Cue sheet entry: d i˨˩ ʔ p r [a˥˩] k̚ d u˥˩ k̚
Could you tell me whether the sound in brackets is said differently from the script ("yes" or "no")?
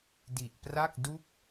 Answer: no